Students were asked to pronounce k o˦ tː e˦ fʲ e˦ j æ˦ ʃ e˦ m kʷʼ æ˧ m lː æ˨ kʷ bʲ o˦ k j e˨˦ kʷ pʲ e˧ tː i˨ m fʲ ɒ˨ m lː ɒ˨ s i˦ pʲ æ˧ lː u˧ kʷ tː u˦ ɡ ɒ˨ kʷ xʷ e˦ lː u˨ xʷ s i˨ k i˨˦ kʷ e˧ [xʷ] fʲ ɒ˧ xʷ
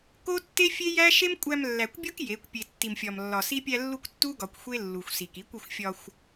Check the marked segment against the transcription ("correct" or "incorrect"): correct